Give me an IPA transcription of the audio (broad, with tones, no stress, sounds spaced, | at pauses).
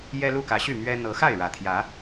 j ɛ˦ l u˥˨ k ä˨˦ ɕ y˥˨ m ɥ ɛ˦ n̪ ɤ˨˦ x a˥˨ ɪ̯ ɻ ä˨˩ t̪ʰ j ä˨˦